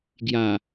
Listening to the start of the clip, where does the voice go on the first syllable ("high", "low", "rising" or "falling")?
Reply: low